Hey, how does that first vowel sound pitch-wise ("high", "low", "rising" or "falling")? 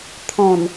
low